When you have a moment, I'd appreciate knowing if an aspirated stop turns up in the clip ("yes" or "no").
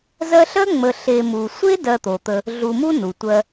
no